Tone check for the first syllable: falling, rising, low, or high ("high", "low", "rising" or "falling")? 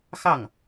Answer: falling